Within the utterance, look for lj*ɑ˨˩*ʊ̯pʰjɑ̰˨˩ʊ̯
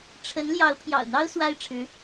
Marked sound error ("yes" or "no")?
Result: yes